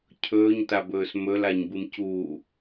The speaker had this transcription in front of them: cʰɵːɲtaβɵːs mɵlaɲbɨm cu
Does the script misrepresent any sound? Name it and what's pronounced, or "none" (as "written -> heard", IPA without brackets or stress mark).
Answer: β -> b